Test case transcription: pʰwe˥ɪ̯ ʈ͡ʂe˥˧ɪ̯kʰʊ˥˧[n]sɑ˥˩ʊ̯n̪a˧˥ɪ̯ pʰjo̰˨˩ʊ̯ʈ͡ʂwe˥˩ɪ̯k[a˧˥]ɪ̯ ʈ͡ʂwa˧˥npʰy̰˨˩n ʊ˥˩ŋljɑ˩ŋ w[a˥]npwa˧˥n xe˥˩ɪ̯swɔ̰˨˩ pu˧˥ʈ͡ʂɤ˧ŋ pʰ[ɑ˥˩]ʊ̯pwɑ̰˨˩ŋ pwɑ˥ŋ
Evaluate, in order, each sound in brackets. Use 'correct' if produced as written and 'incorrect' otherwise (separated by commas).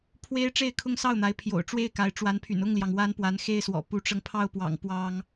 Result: incorrect, correct, correct, correct